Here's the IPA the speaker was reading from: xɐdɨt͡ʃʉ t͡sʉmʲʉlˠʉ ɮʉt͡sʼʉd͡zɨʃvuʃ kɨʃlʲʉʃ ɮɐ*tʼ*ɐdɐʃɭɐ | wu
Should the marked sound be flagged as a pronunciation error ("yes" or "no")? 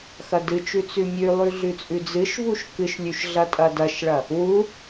no